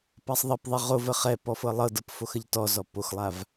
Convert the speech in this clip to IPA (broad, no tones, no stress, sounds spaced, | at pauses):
p a sˤ ðˤ ə p ðˤ i ʁ o v ə χ ɛ p ɔ f ɤ lˠ ɤ d ɤ p f o x ə ʎ t ɔ z ɔ p o x lˠ a v